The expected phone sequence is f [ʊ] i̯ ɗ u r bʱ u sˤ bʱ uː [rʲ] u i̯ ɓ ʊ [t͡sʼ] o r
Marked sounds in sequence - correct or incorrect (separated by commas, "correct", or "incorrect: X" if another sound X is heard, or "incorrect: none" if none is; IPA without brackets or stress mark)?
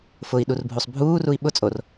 correct, incorrect: r, correct